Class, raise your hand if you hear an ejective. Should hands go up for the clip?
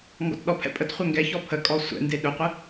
yes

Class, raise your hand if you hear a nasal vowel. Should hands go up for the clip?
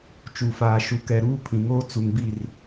yes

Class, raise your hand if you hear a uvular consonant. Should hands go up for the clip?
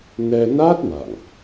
no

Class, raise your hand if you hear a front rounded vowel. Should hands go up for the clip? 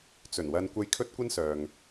yes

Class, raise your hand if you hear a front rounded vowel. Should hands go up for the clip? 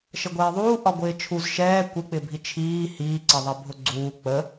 no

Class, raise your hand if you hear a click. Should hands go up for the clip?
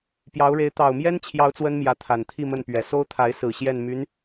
no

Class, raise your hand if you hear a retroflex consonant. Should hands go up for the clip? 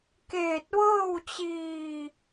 no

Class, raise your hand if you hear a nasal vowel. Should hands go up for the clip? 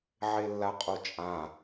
yes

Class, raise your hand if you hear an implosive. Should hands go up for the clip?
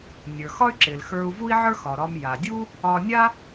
no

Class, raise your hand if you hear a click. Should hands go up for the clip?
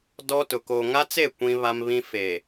no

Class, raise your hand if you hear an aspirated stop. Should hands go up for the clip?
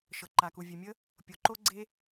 no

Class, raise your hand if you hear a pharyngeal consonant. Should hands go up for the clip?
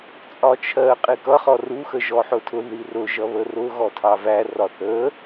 yes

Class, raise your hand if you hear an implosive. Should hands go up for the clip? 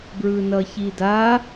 no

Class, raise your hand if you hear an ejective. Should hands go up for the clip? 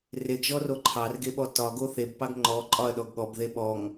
yes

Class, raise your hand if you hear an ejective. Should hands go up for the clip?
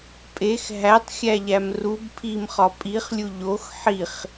yes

